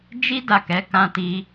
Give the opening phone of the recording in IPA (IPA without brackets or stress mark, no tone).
d͡ʒ